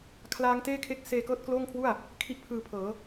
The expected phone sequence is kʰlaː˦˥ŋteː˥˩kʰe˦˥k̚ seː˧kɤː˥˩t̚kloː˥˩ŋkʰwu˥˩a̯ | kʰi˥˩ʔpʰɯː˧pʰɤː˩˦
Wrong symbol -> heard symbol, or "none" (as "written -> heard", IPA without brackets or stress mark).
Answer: none